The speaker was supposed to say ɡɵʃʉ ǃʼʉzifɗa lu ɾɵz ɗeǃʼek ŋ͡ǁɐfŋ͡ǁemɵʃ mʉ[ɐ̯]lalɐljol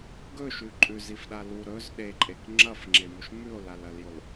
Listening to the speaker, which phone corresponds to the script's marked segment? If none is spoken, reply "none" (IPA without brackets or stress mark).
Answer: o̯